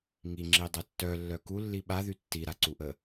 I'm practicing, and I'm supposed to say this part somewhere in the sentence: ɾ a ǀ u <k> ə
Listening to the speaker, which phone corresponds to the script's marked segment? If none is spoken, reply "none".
ʔ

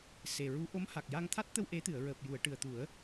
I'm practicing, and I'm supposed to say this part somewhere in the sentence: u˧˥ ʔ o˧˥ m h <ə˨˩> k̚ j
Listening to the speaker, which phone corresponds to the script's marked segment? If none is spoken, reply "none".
a˨˩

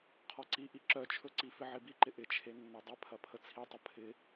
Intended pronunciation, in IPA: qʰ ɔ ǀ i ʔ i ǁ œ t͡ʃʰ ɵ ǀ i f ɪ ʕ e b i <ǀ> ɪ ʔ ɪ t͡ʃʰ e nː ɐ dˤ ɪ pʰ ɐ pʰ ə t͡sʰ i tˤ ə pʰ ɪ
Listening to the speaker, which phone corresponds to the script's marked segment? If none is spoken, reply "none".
ǃ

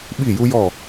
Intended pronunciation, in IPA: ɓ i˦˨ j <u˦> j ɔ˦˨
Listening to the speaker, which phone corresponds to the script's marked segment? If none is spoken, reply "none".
u˦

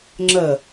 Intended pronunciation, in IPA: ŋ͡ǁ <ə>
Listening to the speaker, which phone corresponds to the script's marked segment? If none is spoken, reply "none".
ə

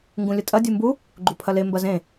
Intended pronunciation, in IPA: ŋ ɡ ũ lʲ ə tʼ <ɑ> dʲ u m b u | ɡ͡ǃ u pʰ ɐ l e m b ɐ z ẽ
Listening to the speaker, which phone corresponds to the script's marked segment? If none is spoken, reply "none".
ɐ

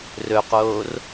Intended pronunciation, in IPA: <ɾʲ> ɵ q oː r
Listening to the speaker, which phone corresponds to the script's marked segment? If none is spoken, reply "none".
r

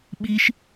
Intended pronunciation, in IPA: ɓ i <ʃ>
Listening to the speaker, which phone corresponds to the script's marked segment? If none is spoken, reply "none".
ʃ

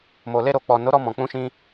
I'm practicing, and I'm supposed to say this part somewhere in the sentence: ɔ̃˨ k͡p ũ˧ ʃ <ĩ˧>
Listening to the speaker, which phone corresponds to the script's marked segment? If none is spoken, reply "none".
ĩ˧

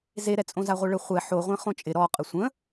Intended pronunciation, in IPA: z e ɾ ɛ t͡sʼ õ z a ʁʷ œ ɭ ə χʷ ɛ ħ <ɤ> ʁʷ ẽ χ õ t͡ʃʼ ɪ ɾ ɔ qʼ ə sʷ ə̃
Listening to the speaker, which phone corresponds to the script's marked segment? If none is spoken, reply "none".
o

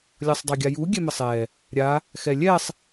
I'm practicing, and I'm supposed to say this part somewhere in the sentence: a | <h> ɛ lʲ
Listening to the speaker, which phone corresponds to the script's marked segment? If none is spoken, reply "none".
x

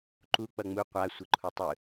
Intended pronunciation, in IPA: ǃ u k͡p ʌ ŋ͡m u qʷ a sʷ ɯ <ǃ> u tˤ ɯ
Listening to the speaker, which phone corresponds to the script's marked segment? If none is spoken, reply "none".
ǃʰ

